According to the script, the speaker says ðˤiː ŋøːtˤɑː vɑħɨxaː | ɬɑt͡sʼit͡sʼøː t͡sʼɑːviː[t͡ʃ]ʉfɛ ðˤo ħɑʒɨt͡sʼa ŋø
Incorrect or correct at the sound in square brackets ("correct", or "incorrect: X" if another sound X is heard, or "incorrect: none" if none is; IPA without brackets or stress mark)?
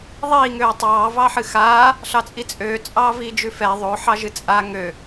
incorrect: d͡ʒ